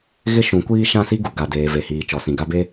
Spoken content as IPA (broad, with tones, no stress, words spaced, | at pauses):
ɣɪ˦ʃũ˨˦kʷiː˦ ʃã˦si˦ɡu˨ ɡa˨deː˨ ve˨hiː˨t͡ʃɔ˨ sĩ˨ɡa˦be˦